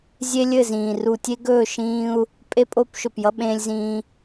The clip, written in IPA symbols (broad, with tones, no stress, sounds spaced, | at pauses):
zʲ e˦ lʲ ɘ˦˨ z ĩː˨ r u˨ tʲ e˦ ɡ ɵː˦˨ ʃ ĩː˦ u̯ | pʼ e˦ pʼ o˦ p ʃ ɵ˨ p j ʌ˦ ɓ ẽː˦ lʲ z ĩː˦